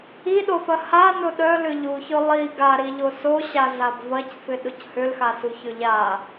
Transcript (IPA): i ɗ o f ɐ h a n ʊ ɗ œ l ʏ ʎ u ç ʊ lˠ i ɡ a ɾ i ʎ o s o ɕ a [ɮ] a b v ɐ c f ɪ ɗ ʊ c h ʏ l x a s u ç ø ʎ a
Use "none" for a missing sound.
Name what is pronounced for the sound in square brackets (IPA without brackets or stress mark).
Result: ɮ